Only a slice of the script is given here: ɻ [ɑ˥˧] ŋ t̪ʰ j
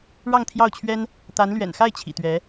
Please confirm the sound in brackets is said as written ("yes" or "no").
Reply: yes